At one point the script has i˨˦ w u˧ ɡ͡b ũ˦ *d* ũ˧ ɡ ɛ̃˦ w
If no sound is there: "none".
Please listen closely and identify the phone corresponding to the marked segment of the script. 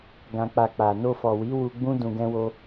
d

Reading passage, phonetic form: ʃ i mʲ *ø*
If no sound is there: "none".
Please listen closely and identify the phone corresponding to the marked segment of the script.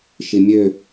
ø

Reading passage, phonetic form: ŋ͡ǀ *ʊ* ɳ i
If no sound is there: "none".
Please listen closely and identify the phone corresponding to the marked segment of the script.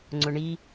ʊ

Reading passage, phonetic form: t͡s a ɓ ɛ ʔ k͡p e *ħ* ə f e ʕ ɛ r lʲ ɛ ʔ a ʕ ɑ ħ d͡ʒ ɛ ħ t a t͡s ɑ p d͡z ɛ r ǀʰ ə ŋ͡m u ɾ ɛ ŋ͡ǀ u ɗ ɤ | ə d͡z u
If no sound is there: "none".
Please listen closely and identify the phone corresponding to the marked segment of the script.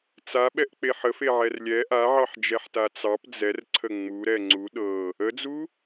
ħ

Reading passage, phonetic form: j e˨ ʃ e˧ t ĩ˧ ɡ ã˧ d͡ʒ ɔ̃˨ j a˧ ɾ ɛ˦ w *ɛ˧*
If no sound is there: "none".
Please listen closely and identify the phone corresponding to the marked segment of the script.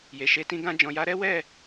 ɛ˦˨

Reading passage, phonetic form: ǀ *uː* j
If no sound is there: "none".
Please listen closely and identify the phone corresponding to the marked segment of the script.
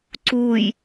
uː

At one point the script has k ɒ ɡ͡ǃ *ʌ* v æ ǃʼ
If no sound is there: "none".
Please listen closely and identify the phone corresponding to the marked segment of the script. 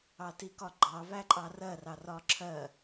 ɑ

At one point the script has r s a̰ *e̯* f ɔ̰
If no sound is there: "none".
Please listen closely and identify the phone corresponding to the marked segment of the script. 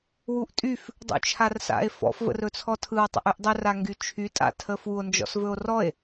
e̯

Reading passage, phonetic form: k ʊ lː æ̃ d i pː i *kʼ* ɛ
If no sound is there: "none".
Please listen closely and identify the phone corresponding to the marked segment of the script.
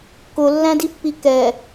k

